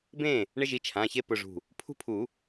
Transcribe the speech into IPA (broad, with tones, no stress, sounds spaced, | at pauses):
b ẽ˥˨ | ɳ ɪ˦ ʒ i˩˧˩ t͡ʃʰ ã˩˧˩ ç e˥˨ p ʊ˧˩ ʐ ṳ˧˩ | pʰ ṳ˦ pʰ u˨˩˦